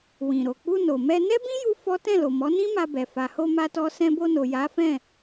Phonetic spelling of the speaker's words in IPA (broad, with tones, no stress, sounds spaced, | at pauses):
w ĩ˨ ɾ o˨ k͡p u˧ n o˨ m ɛ˧ n ɛ˦ b ĩ˦ j u˧ f ɔ˦ t ɛ̃˦˨ l o˨ m ɔ˨˦ n ĩ˦ m a˧ b ɛ˨ f a˨ h o˧ m a˧ t ɔ˧ s ɛ̃˧ b o˧ n o˨ j a˨˦ f ɛ̃˦˨